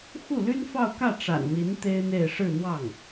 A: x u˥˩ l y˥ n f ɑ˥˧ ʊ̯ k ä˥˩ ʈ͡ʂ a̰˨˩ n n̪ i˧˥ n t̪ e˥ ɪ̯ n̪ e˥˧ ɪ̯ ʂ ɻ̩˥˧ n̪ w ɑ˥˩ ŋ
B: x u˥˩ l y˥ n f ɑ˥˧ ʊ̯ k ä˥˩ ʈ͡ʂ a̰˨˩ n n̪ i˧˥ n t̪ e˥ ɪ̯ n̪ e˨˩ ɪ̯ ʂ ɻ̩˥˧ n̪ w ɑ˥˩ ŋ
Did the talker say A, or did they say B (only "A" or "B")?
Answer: A